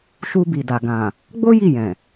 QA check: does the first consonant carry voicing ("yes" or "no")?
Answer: no